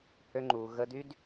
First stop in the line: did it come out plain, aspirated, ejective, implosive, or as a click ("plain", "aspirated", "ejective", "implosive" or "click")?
click